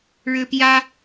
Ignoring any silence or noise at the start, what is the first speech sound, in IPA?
ɻ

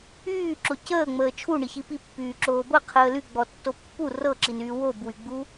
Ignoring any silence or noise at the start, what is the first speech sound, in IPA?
yː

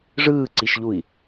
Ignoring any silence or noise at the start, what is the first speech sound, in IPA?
ʐ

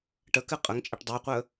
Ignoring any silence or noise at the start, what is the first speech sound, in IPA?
ʈ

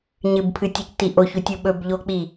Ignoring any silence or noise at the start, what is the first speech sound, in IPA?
ɲ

